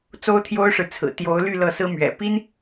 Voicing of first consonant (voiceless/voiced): voiceless